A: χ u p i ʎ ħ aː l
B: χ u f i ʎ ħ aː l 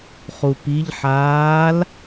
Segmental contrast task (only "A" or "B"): A